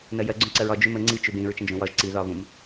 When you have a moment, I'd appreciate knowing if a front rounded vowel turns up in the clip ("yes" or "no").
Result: no